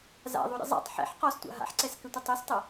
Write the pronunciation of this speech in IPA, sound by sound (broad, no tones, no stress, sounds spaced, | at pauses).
z a̰ ðˤ u ɾʲ ə̰ zˤ a̰ tˤ ħ ɛ̰ ħ q ɔ s tʷ a̰ ɦ a̰ ħ ǀ ɛ s k ʏ tʷ ə tˤ ø s tˤ ə